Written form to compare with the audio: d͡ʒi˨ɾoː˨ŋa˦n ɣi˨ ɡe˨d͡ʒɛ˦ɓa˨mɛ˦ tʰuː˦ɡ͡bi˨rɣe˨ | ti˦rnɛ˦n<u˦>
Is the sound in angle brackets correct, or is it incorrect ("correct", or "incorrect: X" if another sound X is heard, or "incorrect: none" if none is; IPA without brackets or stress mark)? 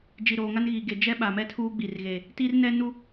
correct